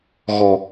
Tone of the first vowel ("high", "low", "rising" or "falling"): low